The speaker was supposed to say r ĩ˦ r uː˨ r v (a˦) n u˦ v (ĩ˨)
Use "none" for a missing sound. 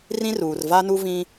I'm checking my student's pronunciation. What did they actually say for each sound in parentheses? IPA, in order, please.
a˦, ĩ˦

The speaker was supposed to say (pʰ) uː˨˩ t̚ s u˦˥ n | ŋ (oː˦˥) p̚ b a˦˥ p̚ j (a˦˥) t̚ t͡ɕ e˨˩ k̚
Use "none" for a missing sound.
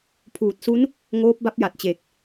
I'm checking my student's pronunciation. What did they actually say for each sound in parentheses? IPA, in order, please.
pʰ, oː˦˥, a˨˩

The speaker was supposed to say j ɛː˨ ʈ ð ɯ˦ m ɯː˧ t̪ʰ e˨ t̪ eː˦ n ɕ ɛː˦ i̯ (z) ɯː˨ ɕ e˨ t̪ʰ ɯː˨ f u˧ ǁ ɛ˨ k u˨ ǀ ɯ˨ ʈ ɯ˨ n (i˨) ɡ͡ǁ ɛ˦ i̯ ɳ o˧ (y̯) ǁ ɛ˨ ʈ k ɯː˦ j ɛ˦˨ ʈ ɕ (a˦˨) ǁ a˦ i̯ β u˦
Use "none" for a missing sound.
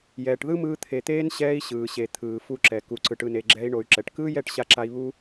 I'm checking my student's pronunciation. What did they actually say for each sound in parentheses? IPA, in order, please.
ɕ, e˨, y̯, a˦˨

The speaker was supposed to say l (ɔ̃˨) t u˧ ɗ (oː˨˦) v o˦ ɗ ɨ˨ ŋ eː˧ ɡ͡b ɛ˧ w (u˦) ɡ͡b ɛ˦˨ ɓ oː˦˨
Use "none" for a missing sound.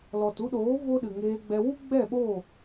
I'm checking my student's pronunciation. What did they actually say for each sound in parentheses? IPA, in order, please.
ɔ˨, oː˨˦, u˦

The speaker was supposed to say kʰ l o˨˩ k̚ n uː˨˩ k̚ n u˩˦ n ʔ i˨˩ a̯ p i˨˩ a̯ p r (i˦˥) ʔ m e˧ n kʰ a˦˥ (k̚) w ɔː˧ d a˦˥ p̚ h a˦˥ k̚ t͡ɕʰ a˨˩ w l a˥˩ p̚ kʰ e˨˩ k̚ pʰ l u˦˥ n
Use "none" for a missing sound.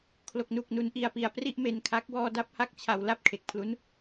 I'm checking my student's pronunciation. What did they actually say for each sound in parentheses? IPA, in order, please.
i˦˥, k̚

